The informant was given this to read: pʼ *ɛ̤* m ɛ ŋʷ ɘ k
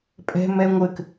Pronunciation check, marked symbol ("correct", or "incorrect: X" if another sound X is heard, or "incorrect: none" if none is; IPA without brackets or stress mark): correct